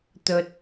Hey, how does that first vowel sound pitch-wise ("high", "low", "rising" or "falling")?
low